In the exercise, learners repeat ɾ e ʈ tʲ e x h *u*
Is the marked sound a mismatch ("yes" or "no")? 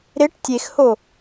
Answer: yes